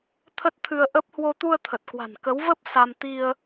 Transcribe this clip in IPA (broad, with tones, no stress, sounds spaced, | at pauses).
t̪ʰ ə˦˥ t̚ t̪ʰ ɨ˧ ə̯ ʔ ə˦˥ p̚ h w o˧ t̪ u˧ ə̯ t̪ʰ ə˨˩ t̚ k w a̤˨˩ n k ə˨˦ w v ə˦˥ p̚ s a˧ m t̪ i˧ ə̯